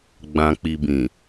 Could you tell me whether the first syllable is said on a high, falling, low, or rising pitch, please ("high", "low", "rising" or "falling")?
low